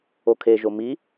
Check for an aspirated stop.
present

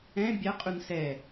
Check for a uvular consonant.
present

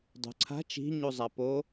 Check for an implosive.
absent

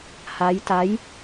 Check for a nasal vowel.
absent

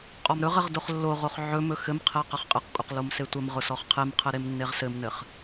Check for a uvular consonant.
present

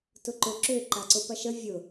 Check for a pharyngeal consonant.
absent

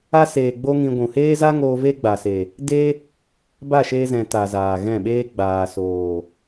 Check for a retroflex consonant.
absent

